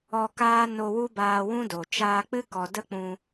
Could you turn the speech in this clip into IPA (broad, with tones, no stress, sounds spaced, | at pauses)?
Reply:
ɔ˧ k aː˦ n o˧ w u˦ b aː˧ w ũ˦ d o˨ t͡ʃ aː˧ k͡p ɨ˦ k ɔ˨ d ə˦ k͡p ũ˧